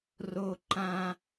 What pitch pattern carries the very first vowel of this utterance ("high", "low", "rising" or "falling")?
high